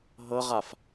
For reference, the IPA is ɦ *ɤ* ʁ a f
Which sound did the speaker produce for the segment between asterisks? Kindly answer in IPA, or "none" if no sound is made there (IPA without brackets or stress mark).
ɤ